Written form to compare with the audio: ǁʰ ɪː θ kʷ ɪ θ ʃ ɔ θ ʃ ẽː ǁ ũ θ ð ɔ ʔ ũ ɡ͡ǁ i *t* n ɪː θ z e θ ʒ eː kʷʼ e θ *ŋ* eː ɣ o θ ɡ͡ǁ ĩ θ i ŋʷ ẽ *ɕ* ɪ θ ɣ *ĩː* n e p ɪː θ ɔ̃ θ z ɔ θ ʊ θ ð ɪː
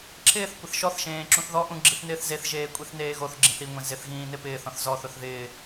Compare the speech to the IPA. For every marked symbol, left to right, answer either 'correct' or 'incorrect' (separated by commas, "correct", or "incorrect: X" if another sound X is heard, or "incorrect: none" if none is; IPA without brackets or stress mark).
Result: incorrect: θ, incorrect: n, incorrect: z, correct